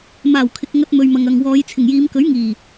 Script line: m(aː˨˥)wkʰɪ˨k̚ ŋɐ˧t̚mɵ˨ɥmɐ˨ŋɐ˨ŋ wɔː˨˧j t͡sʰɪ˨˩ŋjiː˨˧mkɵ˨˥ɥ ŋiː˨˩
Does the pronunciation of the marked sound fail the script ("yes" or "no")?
yes